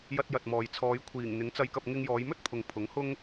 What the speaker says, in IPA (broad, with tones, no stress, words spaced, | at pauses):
jɐ˧t̚jɐ˨t̚mɔː˨jt͡sʰɔː˨˧j kʷʰiː˨˩ŋ n̪ɪ˨˥ŋt͡sɐ˧jkɐ˧p̚ ŋɪ˧ŋjɔː˨˧jmɵ˥t̚pʰʊ˨ŋ pʰʊ˨˥ŋhʊ˥ŋ